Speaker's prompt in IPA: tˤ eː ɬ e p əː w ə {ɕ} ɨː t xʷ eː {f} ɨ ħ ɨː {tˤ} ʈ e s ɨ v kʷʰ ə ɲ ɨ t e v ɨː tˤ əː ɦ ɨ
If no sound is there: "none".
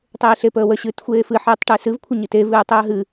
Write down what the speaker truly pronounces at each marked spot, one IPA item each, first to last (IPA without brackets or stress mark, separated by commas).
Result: ɕ, f, tˤ